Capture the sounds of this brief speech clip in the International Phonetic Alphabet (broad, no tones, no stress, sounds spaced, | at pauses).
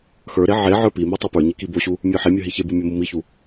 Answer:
x ə˞ ɾ e ʕ e ʕ ə˞ p i m i tˤ e p ə˞ ɲ i k i b o ɕ u | mʲ ə˞ ħ e mʲ ə˞ ɦ i ç e b u mʲ o m u m i ç u